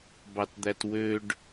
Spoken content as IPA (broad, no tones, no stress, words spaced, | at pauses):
bɑtd̪ætwøɖ